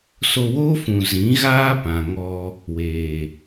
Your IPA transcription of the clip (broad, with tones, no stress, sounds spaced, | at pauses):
s o˧ w oː˦ f ũ˨ z ĩ˨˦ ɣ aː˦ p ã˨ ŋ ɔ˧ | w eː˨